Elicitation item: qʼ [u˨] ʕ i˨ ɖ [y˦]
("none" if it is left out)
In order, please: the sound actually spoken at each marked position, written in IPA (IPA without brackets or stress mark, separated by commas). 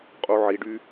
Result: u˨, y˦